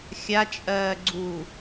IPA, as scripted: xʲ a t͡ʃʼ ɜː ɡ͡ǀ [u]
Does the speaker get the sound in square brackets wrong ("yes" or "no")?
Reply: no